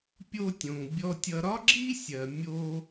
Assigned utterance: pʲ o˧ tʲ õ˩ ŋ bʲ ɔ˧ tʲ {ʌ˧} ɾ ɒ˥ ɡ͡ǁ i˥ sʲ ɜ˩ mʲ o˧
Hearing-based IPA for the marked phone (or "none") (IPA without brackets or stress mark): ʌ˧